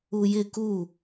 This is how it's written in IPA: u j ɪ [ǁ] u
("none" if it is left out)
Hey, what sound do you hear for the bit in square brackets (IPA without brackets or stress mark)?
k